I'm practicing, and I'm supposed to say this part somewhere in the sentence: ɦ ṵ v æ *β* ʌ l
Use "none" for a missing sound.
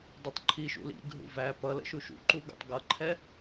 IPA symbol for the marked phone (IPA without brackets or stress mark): p